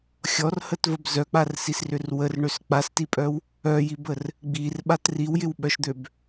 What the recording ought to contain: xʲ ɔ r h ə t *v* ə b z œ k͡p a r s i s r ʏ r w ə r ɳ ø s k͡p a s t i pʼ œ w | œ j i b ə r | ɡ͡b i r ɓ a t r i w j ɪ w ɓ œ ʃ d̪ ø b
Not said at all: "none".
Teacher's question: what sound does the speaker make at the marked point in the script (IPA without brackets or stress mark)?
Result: v